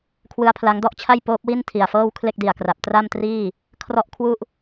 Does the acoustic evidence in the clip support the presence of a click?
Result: no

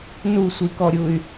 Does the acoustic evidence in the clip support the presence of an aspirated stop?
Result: no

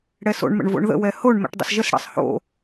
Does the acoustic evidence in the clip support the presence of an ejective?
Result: no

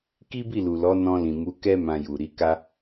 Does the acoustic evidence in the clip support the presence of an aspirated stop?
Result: no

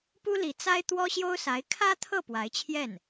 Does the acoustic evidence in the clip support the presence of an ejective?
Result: no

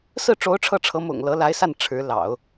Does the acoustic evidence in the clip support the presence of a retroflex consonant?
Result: yes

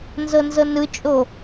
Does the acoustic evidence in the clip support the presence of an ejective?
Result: yes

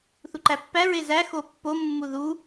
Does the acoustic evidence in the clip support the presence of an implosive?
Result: no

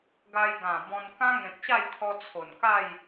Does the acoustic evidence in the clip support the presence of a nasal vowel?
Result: yes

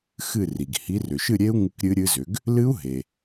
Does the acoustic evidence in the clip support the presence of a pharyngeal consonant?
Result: no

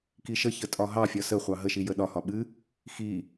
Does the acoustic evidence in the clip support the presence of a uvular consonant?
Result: yes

